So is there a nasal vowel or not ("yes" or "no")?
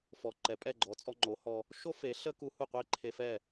no